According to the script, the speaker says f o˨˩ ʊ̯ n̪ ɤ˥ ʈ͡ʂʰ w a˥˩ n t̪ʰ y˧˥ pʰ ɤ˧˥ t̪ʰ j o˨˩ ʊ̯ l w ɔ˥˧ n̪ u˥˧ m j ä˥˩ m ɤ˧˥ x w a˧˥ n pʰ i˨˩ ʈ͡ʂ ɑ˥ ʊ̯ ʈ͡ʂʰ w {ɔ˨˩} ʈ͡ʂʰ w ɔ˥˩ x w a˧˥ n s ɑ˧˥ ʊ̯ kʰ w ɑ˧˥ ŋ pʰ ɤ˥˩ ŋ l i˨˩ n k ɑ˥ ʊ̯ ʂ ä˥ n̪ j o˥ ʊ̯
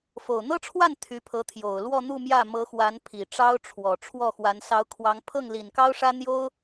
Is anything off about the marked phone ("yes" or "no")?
no